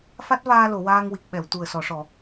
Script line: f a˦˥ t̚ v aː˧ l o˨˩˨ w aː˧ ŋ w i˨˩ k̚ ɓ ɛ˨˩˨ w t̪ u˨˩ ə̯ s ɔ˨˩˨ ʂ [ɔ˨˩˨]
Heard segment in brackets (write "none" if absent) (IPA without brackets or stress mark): ɔ˨˩˨